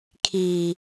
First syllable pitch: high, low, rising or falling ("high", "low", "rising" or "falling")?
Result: low